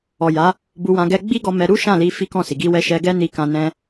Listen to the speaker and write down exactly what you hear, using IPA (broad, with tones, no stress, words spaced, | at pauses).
ɔ˨ja˨˦ | bu˧wã˧ ɡɛ˧ ɡ͡bi˦ɡɔ˧mɛ˧ ɾu˦ʃã˦˨li˧ fi˦kɔ̃˦˨si˨ ɡi˧wɛ˧ʃɛ˧ ɡɛ˦ni˧kã˧ nɛ̃˦